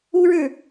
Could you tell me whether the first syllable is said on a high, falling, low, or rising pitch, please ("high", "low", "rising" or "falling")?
high